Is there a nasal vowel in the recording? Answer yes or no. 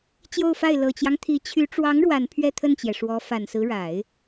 no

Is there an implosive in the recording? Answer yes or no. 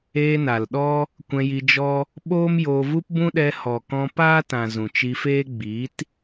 yes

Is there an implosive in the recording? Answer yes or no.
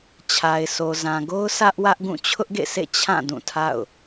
no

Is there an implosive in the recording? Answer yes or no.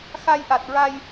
no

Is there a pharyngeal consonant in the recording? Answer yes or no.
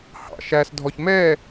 no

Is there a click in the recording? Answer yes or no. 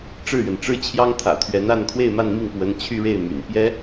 no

